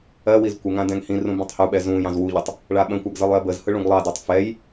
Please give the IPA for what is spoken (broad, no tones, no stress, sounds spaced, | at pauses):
ɜ w i z kʷ ə ŋ ã d ɛ̃ ŋ h ĩ r ũ b ĩ tˤ h u ɓ ɛ z ũ j ɑ̃ z w u ʎ ə tˤ | ɭ a ɓ ə̃ kʷ a ɡ z ɯ lˠ j ɜ b ə z h ɯ ɭ ũ ɡ lˠ ɑ d ɜ tˤ f ɛ j